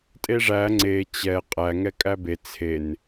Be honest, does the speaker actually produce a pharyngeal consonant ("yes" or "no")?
no